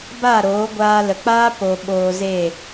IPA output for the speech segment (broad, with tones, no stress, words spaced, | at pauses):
ba˦˨ɾoː˨˦ɡʷaː˧ lə˨k͡paː˦ po˨ ɓoː˧ze˦˨